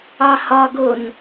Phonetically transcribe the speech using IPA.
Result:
ɑhɒɡon

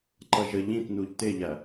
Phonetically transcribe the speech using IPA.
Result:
ǃʌʒə ʎĩtnuʎ tɪʎæ

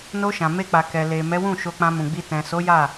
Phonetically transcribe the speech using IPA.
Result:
no˧ʃã˨me˧k͡pa˨ kɛ˨le˨ mɛ˨˦wũ˦˨ ʃo˧k͡pã˧mũ˨ɡ͡bi˧ tɛ̃˨so˨˦ ja˦˨

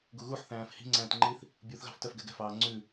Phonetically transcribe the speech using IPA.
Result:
ɡuɣuħθæ̃ːf hi̤ŋ͡ǀæ̃ːtŋ͡ǃiθ | bʲuθɣɑ̤f tœfɡɛɡɛ̤fɑː ŋ͡ǀʉ

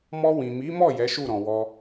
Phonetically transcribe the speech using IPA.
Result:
mɔ˧wĩ˨mi˨˦mɔ˦˨ jɛ˨˦ʃu˦˨ɾɔ̃˨ wɔ˧

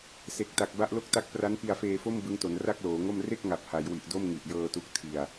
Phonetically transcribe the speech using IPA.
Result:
se˨˩k̚ta˨˩k̚ ba˦˥ʔlo˦˥k̚ta˦˥k̚pra˦˥n pi˧a̯feː˧fo˥˩m bɯ˦˥ŋto˩˦n ra˥˩k̚loː˩˦ŋo˥˩m re˥˩k̚ŋa˨˩p̚ha˩˦jwi˨˩ʔ do˥˩mŋi˨˩ʔjɤː˧tu˦˥k̚ tʰi˧a̯

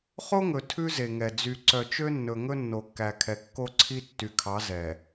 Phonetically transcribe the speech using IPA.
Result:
χo˦ŋɵ˨ tʰʉ˦ze˨ŋɛ˨ d͡zy˨ǀœ˨t͡ʃø˦nːɵ˨ ŋɵ˦nːo˨kːæ˨kʰɛ˨ kːo˦ǀʰi˦ tːy˨kʰɑ˨˦ zɛ˨

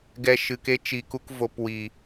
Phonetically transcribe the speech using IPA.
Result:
ɡɛ˨ ʃɨ˨ke˧t͡ʃi˨ku˧k vo˧p wi˨

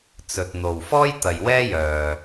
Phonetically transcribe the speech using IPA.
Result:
t͡sɵ˨t̚n̪o˨wfɔː˥j t̪ɐ˨jwɛː˥jœː˨

